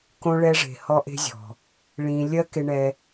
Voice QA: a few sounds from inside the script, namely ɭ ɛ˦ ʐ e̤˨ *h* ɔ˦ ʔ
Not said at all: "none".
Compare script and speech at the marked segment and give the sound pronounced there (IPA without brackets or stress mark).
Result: h